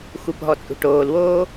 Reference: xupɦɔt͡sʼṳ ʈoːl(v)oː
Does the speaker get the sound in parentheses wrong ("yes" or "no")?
yes